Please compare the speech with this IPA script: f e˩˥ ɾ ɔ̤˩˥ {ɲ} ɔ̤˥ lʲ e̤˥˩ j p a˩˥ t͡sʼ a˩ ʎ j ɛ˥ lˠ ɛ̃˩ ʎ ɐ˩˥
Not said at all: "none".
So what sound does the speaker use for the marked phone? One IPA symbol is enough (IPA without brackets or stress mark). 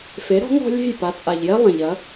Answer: ŋ